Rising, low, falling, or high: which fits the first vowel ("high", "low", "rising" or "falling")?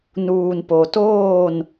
low